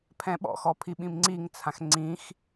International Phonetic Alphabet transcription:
pʰ ɛ̃ ɓ ɔ̰ x ɔ pʰ i ɓ ĩ m ŋ͡ǀ i ŋ t͡sʰ ã x ŋ͡ǀ ĩ x

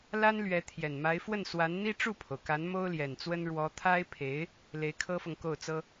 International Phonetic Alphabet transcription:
l a˥ n l ɥ ɛ˧˥ t̪ʰ j ɛ˨˩ n m a˧˥ ɪ̯ f w ə˥˩ n s w a˧˥ n n̪ i˥ ʈ͡ʂ u˥˩ pʰ o˩ ʊ̯ k a˧˥ n m o˥ ʊ̯ l j ɛ˨˩ n t͡s w ə˥ n ɻ w ɔ˧˥ t̪ʰ a˥ ɪ̯ pʰ e˧˥ ɪ̯ | l e˧˥ ɪ̯ kʰ ɤ˥ f ɤ˨ ŋ k o˥˩ ʊ̯ t͡s ɤ˥

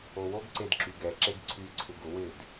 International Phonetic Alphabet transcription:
o w o ɡ ǀ e d ǁ y ɡ ɛ ǁ e ɡ ǀʰ y ǀʰ ɪ ɡ ʊ w ɪ d

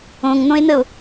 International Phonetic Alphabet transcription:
õ ŋ n̪ õ e̯ n̪ ə o̯

